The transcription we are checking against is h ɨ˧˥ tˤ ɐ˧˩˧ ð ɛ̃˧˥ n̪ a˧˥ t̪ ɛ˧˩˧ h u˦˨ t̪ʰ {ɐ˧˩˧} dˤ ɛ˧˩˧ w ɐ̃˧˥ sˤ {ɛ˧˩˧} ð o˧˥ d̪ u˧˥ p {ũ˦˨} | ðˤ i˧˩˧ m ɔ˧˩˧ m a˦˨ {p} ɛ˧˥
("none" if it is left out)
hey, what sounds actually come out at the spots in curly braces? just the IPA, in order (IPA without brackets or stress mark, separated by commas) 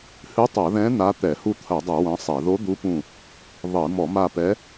ɐ˧˩˧, ɛ˧˩˧, ũ˦˨, p